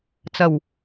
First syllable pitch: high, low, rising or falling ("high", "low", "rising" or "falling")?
low